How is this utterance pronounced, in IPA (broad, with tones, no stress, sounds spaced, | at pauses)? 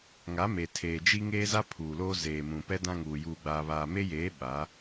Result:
ŋ a˨˦ m e˨ tʰ eː˨ d͡ʒ i˦ ŋ eː˦ z a˦ pʰ uː˨ l oː˦ z eː˨ m ũ˨ p ɛ˦ d ã˦ ŋ uː˨ j uː˨ ɡ͡b aː˨ β aː˨ m e˦ j eː˨˦ ɓ a˨˦